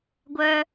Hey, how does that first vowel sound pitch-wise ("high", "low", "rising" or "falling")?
high